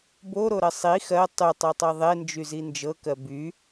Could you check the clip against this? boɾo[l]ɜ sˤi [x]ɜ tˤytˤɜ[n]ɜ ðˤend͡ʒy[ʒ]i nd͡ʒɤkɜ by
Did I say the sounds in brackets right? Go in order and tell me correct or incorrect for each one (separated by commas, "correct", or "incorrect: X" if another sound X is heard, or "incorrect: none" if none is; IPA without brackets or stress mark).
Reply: incorrect: ɾ, correct, incorrect: tˤ, incorrect: z